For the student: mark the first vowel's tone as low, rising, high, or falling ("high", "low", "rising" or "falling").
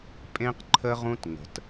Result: high